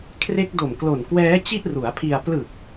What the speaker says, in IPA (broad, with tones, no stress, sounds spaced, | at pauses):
kʰ r e˦˥ k̚ d o˨˩ m k l o˨˩ n k w ɛː˦˥ t͡ɕ i˥˩ ʔ r u˩˦ a̯ pʰ i˧ a̯ p l ɯ˨˩ k̚